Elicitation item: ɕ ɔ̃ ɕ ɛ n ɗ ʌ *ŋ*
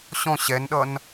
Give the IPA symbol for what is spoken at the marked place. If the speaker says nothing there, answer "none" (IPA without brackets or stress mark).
n